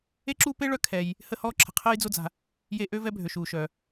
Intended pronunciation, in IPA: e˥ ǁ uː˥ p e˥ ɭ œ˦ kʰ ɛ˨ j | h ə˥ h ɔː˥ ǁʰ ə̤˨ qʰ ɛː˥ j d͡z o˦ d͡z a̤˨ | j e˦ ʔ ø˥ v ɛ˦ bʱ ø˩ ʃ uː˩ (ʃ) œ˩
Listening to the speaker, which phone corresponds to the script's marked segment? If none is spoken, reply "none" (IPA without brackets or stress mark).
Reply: ʃ